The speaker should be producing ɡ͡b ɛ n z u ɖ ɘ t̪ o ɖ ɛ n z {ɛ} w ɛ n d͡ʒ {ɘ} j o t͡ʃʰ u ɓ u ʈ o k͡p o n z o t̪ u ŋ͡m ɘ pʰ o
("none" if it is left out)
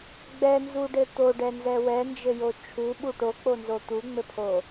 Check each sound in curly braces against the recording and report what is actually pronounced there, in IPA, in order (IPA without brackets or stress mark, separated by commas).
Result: ɛ, ɘ